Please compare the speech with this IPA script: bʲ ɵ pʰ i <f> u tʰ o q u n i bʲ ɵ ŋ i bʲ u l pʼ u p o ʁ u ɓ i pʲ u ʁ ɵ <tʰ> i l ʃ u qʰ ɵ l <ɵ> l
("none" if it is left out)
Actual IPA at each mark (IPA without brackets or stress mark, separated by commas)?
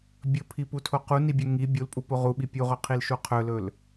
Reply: p, qʰ, ɵ